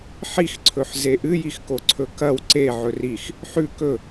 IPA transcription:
ħixǀʰɵħze ʔɨjixkoǀʰɵ kɐw ǀeʕɵ rix | ħʉ kɵ

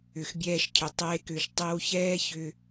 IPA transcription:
ʏ˨xbʲɛː˧ʃcʰʏ˨ tˤeː˧kʏː˨ʃ tˤe˧wçɛː˦çʏ˧

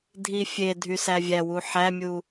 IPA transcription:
dʱifʲe dʱysævʲæwu ħæmʲu

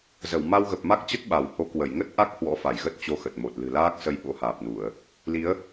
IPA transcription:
zə˧˩w ma˧wɣə˨˩p̚ma˦˥k̚t͡ɕə˦˥t̚ ɓa˧˩who˨˦kwə˧˩j ŋə˦˥t̚ʔa˦˥k̚ hwɔ̰˧˥fa˧˩jɣə˦˥t̚ t͡ɕo˧xə˨˩t̚mo˨˩t̚ lɨ̤˨˩laː˦˥k̚ sə˨˦j ɓo̰˧˥haː˨˩p̚nu˧˩˨ə̯ | li˨˦ə̯

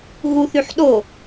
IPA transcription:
ɣuθyħ ɗo

